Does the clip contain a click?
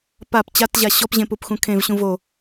no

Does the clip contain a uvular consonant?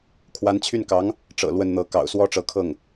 no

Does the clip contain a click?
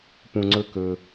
yes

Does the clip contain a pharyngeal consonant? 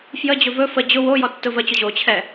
no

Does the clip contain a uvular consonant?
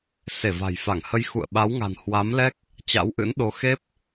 no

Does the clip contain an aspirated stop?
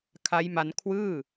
yes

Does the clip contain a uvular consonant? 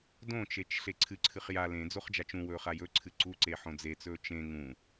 yes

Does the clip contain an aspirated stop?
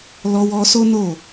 no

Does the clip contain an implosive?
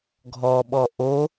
yes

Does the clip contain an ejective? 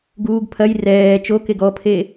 no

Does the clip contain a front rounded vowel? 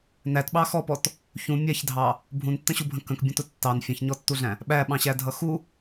no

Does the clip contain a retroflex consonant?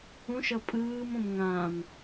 no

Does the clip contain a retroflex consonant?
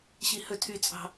no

